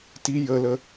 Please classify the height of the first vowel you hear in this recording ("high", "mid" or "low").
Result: high